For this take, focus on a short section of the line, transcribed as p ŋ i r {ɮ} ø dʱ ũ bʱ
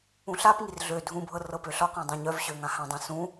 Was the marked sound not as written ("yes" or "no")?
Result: no